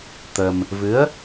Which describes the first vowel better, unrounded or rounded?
unrounded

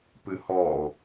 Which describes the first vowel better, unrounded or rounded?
unrounded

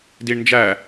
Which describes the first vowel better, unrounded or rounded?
unrounded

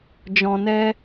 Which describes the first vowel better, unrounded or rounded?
rounded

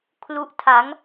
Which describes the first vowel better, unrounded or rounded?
rounded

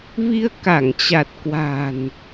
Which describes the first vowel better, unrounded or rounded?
unrounded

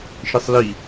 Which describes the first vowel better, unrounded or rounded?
unrounded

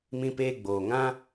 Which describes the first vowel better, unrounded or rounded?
unrounded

